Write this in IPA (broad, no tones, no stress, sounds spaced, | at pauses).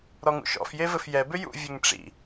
ɾ ɔ ŋ ṵ ʃ ɔ̰ f j e v ɘ f j ɛ b ʏ j ṵ vʲ ɘ ŋ ʈ͡ʂ ḭ